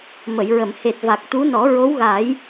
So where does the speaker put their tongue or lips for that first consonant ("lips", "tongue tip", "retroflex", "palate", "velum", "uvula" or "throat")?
lips